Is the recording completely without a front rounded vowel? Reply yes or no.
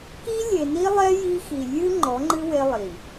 yes